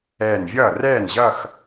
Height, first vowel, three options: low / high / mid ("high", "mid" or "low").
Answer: mid